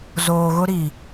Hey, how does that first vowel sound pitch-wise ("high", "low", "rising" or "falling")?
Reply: low